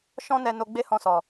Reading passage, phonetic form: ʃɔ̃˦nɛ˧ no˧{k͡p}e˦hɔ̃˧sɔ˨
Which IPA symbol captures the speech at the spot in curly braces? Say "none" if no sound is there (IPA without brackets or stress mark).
ɡ͡b